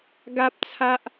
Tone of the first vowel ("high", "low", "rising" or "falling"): high